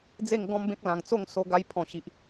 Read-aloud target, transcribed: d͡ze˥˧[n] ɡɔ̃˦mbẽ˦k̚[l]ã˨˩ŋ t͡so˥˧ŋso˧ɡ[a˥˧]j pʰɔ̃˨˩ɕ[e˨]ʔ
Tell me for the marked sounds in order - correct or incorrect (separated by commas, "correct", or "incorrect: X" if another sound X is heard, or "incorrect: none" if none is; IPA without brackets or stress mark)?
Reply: incorrect: ŋ, correct, incorrect: a˧, incorrect: i˨